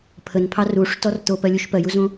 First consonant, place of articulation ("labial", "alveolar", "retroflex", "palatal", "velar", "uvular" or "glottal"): labial